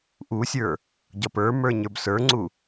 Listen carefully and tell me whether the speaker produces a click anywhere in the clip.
yes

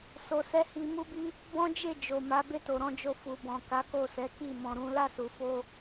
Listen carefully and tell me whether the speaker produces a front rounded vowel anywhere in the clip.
no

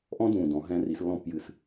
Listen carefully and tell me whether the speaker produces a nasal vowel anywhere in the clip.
yes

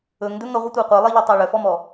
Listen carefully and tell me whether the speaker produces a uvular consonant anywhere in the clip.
yes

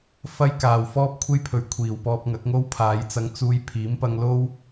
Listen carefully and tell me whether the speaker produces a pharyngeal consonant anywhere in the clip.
no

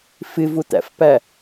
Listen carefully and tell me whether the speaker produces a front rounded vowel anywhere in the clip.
no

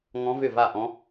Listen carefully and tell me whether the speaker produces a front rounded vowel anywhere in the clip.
yes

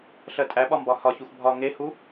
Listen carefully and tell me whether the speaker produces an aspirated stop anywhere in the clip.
no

